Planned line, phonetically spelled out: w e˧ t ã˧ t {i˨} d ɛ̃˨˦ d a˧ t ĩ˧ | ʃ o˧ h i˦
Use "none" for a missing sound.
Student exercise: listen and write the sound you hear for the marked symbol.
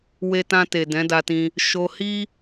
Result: e˨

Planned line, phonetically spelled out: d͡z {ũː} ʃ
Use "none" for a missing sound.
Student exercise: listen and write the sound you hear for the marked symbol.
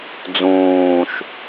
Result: ũː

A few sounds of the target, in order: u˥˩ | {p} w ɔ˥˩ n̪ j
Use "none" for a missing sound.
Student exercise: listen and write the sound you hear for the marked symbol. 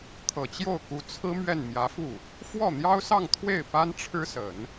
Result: f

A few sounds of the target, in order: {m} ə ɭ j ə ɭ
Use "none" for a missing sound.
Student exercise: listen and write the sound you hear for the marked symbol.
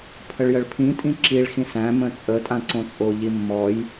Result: pʰ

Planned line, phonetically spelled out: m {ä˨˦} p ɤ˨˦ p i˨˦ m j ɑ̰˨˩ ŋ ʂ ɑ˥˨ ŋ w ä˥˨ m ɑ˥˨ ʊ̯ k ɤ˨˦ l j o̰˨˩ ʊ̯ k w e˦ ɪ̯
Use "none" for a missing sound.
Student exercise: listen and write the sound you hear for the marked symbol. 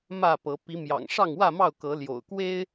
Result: ä˥˨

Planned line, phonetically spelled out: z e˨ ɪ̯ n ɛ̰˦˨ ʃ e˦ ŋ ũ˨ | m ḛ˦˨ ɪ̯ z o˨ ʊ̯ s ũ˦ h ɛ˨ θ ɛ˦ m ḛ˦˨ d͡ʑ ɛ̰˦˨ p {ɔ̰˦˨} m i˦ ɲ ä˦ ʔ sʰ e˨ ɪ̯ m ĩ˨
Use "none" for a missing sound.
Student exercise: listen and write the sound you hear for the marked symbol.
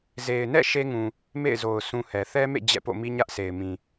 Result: o̰˦˨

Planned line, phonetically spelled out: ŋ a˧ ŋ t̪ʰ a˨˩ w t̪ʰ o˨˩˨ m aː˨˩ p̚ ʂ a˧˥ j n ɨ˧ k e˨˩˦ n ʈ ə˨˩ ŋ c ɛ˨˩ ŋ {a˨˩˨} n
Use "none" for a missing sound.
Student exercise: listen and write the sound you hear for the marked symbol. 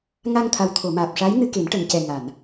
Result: a˨˩˨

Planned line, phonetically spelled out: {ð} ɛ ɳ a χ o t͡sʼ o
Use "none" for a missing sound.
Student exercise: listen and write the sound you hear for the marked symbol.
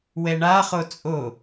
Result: w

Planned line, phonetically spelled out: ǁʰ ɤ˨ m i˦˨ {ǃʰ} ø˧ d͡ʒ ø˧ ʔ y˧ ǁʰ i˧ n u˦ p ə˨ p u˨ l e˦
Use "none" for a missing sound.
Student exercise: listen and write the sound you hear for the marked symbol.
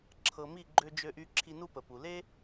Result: ɡ͡ǃ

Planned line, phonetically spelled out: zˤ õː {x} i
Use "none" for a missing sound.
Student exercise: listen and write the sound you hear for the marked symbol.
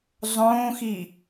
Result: x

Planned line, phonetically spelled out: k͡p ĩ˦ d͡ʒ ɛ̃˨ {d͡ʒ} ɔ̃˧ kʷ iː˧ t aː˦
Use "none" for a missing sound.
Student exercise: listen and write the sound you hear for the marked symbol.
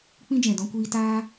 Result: d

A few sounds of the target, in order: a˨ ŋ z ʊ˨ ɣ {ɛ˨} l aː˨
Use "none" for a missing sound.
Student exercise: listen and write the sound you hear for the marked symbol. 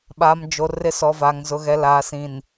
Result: ɛ˨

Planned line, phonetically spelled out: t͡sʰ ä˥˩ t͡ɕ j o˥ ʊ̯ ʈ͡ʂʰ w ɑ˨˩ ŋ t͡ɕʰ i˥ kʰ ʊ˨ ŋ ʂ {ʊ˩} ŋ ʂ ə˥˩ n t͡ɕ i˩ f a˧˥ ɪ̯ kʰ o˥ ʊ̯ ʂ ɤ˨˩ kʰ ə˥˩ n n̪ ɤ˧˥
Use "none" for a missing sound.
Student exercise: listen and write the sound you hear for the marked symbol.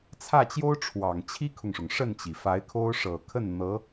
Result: ʊ˩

